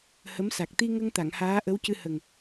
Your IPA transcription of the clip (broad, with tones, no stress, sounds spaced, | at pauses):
h ə˧˥ m s a˨˩ k̚ t̪ i˧ ŋ ə˧ ŋ t̪ a˨˩˨ ŋ h aː˧˥ ʔ ə˧˥ w c ɨ˧ h ə˨˩ ŋ